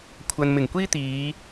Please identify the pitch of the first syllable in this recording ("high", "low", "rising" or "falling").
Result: low